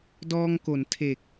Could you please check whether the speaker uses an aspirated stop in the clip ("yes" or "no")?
yes